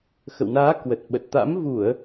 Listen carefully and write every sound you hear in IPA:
x ə̰˧˨ w n aː˨˦ k w ə˨˩ t̚ ɓ ə˨˩ t̚ t̪ a̰˧˥ m v u˧˩˨ ə̯

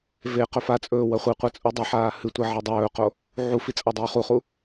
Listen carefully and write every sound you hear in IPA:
v e q ɵ f a t͡sʼ ɵː w ɐ χʷ i qʷ a t͡sʼ u dˤ e ħ aː h ɨ tʷ ɐ ʕ ɐ dˤ ɵː q o | ʕ u f i t͡sʼ a dˤ ʉː χ u χ u

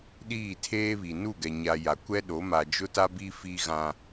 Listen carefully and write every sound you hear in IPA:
ɗ iː˦˨ tʰ eː˦ β i˨ n u˦˨ ɡ ɛ˨ ɲ a˨ j a˨ kʷ ɛ˦ ɗ o˨˦ m a˨ d͡ʒ ʊ˦ t a˦ b i˦ f i˦ ɣ ã˦

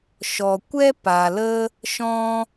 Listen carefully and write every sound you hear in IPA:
ʃ ɔ˨ kʷ ɛ˦ p a˨ l ə˦ | ʃ ɔ̃˦

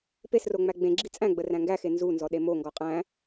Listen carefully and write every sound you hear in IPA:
p e s r o ŋ͡m æ ɡ͡b ẽ ɡ͡ǁ i t͡sʼ æ̃ ɡ͡b ə r æ̃ ŋ ɡ æ x e n z u n z ɔ ɗ e m o ŋ ɡ ɔ qʼ æ̃

